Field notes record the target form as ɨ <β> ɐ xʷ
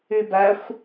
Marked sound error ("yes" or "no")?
yes